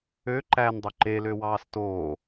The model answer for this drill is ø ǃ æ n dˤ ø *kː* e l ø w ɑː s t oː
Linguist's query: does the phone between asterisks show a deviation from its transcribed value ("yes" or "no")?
yes